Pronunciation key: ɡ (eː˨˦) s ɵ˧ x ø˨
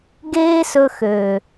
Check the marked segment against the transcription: incorrect: eː˦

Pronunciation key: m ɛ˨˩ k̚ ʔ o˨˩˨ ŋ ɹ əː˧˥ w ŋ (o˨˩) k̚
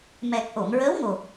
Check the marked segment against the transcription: correct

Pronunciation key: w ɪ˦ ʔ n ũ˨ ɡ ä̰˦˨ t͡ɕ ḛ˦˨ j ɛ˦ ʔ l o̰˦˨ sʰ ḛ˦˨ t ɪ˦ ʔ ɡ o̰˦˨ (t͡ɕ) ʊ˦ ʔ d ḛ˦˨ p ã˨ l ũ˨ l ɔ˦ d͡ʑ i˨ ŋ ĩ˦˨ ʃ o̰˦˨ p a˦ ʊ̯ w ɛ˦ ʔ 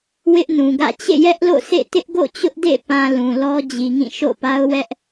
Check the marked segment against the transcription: correct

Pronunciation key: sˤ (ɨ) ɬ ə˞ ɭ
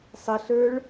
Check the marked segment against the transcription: incorrect: ə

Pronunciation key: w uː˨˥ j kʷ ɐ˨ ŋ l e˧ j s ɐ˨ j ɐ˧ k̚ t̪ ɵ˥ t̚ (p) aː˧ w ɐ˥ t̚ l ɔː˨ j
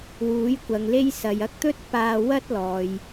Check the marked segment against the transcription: correct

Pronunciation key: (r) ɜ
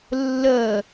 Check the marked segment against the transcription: incorrect: lː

